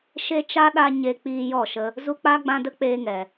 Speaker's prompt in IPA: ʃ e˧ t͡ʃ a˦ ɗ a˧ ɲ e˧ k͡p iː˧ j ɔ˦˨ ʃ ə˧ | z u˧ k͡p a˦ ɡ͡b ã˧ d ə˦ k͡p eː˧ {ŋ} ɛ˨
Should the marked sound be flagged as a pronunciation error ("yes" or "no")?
no